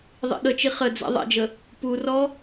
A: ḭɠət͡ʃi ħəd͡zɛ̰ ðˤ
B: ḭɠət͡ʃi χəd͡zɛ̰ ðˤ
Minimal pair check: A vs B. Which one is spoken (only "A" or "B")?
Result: B